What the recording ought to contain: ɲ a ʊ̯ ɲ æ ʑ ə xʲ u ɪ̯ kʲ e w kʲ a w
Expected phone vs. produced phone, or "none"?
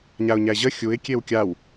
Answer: none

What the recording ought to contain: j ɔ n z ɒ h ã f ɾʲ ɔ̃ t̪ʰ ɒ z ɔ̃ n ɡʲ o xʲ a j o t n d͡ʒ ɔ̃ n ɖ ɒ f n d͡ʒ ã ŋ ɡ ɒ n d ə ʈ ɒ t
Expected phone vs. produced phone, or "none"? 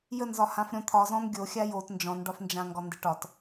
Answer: ɔ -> ə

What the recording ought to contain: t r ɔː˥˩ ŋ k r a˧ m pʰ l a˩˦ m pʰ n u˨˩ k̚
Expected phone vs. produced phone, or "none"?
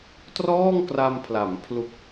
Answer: n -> l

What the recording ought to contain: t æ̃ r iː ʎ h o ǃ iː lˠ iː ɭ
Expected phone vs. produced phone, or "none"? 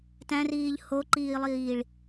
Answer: none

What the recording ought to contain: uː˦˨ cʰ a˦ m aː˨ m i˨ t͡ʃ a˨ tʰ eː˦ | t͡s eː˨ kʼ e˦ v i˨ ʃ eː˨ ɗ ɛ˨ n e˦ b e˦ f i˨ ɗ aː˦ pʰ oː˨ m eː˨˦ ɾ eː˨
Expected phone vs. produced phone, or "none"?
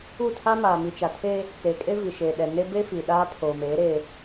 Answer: cʰ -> tʰ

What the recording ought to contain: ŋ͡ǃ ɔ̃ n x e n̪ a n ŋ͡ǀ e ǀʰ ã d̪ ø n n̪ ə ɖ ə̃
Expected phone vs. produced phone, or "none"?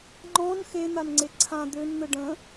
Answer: none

